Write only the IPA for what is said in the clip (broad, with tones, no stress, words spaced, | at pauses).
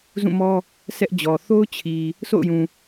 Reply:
zũ˦˨mɔ˦ | sʰɛ˦ʔd͡ʑɔ˨ θo˦ʊ̯t͡ɕʰi˨ | sʰo̰˦˨ʊ̯jũ˨